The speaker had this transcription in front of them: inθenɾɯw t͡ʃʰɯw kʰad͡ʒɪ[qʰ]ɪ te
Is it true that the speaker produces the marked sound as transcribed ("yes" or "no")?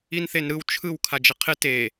yes